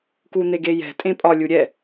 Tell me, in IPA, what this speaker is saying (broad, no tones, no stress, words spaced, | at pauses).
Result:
kun̪eɡejɛ̤ tʼẽpʼɒ lʲuɾʲɛ